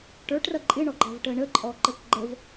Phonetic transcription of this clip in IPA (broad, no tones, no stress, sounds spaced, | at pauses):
ʈ ə˞ ʈ r ʌ ǃʼ ɪ ɳ ɔ ɡ͡ǃ ɑ v ʈ ə ɳ ə ǃʼ ɔ ǃ ə k ɡ͡ǃ ə v